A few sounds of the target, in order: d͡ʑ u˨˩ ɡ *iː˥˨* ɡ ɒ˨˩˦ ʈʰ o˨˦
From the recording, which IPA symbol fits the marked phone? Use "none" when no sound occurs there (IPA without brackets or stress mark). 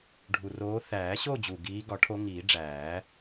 iː˨˦